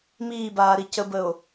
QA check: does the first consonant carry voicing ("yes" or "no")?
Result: yes